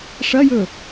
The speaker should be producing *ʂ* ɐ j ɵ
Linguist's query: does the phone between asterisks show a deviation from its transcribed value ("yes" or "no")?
no